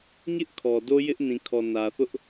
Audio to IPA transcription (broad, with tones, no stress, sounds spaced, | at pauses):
ɲ ɪ˦ ʔ kʰ ɔ˨ d o˦ j ɪ˦ ʔ n ĩ˨ kʰ ɔ˨ n ä˨ θ ʊ˦ ʔ